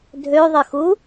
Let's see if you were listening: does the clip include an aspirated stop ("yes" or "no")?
no